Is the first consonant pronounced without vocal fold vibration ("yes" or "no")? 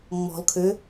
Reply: no